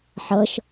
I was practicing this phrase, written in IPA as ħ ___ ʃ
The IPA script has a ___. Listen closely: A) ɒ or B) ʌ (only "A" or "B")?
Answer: B